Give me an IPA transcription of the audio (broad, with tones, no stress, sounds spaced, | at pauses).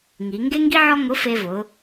ŋ i˩˧ ŋ ɡ e˥ ŋ ɡ i˥ ʕ ɔ˥ ŋ ʊ˧˥ f e˧ v ʊ˩˧